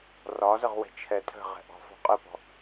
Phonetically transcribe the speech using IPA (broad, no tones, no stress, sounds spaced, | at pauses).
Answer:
r ɒ z ə ʁ w ɛ̤ t͡ʃʰ ɛ tʰ ə̤ ʁ ɛ̤ ʔ ɔ̤ f ɔ̤ qʼ ə p ɔ̤